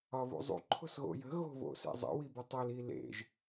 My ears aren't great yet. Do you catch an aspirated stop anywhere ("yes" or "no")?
yes